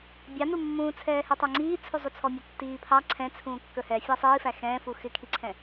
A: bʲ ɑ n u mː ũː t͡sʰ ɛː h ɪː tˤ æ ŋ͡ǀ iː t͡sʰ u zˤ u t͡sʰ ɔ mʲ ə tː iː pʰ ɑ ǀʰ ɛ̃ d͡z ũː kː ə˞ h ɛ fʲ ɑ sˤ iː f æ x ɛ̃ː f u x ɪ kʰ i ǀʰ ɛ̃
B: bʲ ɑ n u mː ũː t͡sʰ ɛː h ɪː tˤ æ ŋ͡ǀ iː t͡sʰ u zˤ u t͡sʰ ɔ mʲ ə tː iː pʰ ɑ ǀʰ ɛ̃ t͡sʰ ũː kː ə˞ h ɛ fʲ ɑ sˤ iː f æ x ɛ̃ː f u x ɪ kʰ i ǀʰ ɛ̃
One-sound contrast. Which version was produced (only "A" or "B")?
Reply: B